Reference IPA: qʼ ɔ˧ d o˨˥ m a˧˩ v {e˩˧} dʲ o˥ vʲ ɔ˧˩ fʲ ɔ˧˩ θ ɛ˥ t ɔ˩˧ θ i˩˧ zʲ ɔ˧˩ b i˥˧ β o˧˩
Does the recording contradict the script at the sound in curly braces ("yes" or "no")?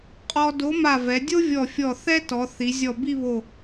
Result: yes